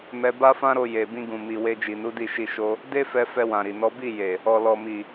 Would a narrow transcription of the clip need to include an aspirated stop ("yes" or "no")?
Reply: no